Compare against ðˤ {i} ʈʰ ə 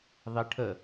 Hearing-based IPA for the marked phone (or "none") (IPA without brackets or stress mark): i